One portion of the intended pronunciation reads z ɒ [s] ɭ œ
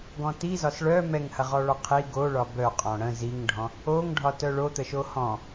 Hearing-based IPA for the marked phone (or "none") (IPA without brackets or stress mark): s